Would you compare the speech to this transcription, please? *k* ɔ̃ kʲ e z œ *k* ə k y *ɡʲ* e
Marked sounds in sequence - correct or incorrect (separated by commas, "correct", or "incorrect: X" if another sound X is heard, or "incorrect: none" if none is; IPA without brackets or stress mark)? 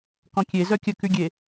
correct, incorrect: kʲ, correct